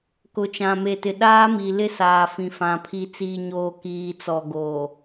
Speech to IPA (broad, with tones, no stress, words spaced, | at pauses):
kʊ˨t͡ʃã˨me˨tɪ˨ ɗaː˦mi˨ lɪ˦saː˨ fĩ˨fã˨ pʰi˨t͡siː˨ɲoː˨ kiː˨t͡sɔ˨ ɡoː˨